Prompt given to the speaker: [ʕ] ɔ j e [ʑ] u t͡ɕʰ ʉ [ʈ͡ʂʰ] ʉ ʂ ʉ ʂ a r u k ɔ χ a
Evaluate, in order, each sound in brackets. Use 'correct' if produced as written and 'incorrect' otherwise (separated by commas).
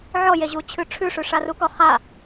correct, correct, correct